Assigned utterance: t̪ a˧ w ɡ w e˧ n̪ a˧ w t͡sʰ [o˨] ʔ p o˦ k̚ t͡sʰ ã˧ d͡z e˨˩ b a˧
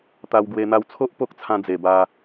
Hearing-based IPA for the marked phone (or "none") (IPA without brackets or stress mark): o˦